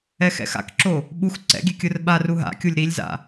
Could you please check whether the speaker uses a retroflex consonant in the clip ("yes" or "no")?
no